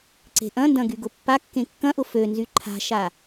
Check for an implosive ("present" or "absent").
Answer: absent